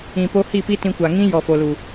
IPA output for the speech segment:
ĩ˨ p o˧ h i˦˨ p i˦ t ĩ˧ kʷ a˨ ŋ ĩ˦ j ɔ˨ f o˨ l u˨

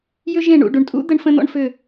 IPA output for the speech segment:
j ʏ˥ ʒ ẽ˥˩ ɳ ṵ˥˩ ɖ u˩ ɳ tʼ ṵ˥ d̪ ə˥ ɳ f ə̃˥ n̪ ɔ̰˥ ɳ f ʏ˥˩

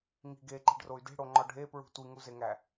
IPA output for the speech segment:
ŋ i̤ ɡ e ǃ e̤ ɖ r o y̯ d e̤ ɽ o ŋ͡ǃ ɒ ɖʱ e p ɹ ṳ tʷ i ŋ u z e ŋ æ

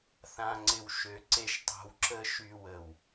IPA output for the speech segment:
θ ã˨ ŋ͡ǀ ɪ˨ w ʃ ø˨ ǀ e˨ ʃ tˤ o̤˨ w ǁ ə˨ ʃ y˨ w ə˨ w

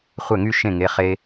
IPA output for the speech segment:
χʷ ɛ˥˩ ŋ y˥ ʃ ẽ˥˩ ŋ e˩˧˩ χ e˧

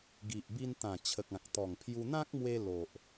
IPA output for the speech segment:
ɡ i˨ ʔ b i˧ n t̪ ã˨˩ t͡ɕʰ ə˨ k̚ ã˨ k̚ t̪ ɔ˨˩ ŋ pʰ j u˧ n̪ ã˦ k̚ m w e˧ l o˨ ʔ

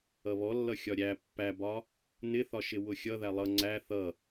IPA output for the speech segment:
ʌ β ɔ lː ʌ xʲ ɒ ɾʲ æ pː æ b ɒ | n ɪ θ ɒ ʃ ɪ w ʊ xʲ ʌ ð æ lˠ ʌ ŋ͡ǀ æ θ ʌ

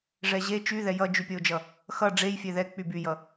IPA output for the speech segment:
ʐ ɛ ʑ e t͡ʃ y ð ɛ j ʌ d͡ʒ y pʲ ʌ o̯ d͡ʒ ʌ | x ʌ ɖ͡ʐ e j fʲ ɛ ð ɛ k͡p y b y j ʌ

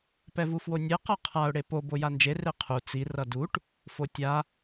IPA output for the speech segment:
p ɛ v u f w o nʲ e q ʌ qʰ a ʊ̯ ɽ e p o b o j a n d͡ʒ e r e qʰ u t͡s i r ʌ d u ʈ | f o tʲ a

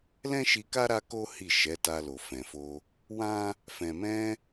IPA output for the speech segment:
l ɛ̃˦ ʃ i˧ k a˦ ɾ a˦ k o˦ h i˦˨ ʃ ɛ˨˦ t a˧ l o˨ f ɛ̃˨ f o˧ | w ã˦ | f ɛ̃˨ m ɛ̃˧

